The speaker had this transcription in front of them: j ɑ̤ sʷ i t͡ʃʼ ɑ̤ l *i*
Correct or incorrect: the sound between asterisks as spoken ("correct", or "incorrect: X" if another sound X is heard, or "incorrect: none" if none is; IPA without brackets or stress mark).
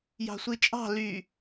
incorrect: y